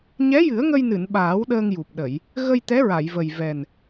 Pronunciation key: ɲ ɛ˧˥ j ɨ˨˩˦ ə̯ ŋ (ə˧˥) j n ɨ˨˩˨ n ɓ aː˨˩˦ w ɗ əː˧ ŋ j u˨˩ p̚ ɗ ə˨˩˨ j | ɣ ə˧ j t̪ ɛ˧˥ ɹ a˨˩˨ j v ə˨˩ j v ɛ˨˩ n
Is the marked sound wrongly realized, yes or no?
yes